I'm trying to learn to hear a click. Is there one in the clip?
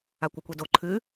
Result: yes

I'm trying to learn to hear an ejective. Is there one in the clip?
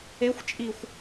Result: yes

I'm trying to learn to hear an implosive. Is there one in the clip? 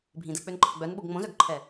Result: yes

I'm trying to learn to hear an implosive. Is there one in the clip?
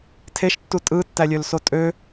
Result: no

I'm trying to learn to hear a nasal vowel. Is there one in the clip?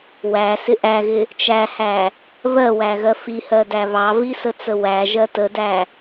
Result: no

